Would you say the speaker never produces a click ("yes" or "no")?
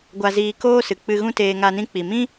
yes